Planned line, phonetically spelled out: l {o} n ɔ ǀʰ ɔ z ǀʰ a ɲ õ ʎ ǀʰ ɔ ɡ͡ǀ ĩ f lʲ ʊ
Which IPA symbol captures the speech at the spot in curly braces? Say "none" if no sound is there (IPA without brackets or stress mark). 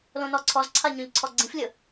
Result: õ